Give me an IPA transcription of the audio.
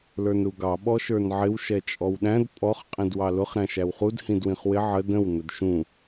l ə˞ n ɾ u ɡ ɑ ɓ ɔ ʃ ə˞ n ʕ ɪ w ʃ ɛ t͡ʃʼ ɔ w ɗ æ̃ d pʼ ɔ χ qʼ ĩ d w ɑ l ʊ χ ɾ æ̃ ʃ æ w χ u d h ĩ d w ĩ χ w ɪ ʕ ə d ə̃ w n ə d ʃ ũ

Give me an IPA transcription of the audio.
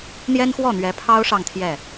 n̪ j ɛ˥ n x w ɔ˥˩ n̪ ɥ ɛ˧˥ pʰ ɑ˥ ʊ̯ ʂ ɑ˥˧ ŋ t̪ʰ j ɛ˥˩

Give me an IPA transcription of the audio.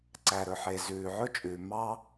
ǀ æ˩ ɾ ɵ˩ ħ e˩ z ʉː˩ ʕ ɵ˥ t͡ʃʼ ʉː˩ m ɑ˥

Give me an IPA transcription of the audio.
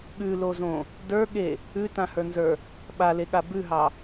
ɠ ʉ l o z õ | d ə˞ ɠ e | ʉ t ã h ə˞ n z ə˞ | ɓ a l e ɠ a b ʉ ɦ ɑ

